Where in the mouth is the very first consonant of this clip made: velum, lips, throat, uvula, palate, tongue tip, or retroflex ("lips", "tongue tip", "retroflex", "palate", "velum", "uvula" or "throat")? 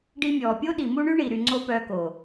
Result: retroflex